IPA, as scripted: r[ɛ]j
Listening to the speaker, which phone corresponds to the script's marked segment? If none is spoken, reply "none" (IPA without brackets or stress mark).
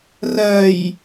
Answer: ɜ